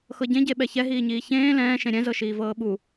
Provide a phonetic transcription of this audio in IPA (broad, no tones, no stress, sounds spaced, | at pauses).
x ɤ ɟ ẽ ɟ e ɓ ɛ ç ɛ ɦ iː ɲ iː ç ẽː l ɛ̃ː ʃ ẽ ɾʲ ɛ̃ z ɤ ʃ iː v ɤː ɓ u